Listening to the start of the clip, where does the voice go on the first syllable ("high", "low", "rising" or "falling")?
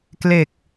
low